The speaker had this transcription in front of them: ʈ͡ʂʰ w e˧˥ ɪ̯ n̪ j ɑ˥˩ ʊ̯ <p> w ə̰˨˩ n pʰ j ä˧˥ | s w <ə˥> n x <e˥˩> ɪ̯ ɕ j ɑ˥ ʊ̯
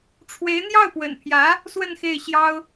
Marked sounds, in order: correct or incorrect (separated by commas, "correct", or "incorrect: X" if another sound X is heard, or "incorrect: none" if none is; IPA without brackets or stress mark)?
correct, incorrect: ə˥˧, correct